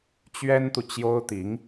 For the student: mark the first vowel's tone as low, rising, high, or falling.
high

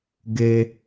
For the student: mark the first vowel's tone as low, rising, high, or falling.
low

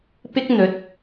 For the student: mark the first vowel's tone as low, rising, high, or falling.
high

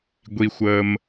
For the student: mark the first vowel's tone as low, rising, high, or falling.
high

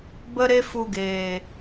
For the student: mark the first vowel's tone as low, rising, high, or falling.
high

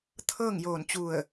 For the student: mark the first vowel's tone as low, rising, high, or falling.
falling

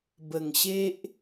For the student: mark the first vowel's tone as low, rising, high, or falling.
low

